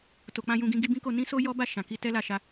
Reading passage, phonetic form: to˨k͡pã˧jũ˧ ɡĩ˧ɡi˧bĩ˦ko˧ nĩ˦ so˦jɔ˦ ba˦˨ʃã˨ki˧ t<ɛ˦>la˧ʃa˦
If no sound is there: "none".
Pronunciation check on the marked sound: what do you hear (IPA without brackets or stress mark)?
ɛ˦